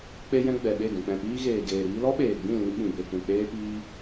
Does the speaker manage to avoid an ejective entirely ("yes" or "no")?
yes